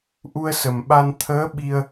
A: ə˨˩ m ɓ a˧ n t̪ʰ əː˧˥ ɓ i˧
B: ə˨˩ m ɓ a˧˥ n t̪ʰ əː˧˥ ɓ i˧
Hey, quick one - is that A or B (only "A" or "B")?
A